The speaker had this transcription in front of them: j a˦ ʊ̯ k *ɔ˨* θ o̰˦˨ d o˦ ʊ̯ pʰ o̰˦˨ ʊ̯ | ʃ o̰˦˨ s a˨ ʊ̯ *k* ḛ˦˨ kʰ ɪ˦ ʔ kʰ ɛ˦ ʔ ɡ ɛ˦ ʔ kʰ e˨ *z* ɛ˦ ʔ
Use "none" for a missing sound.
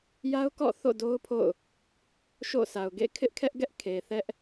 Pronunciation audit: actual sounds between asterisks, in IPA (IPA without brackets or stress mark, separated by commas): ɔ̰˦˨, ɡ, θ